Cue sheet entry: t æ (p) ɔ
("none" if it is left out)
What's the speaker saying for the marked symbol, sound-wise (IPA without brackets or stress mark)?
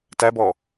b